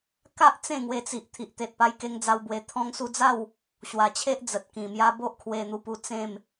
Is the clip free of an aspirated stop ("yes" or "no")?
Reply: no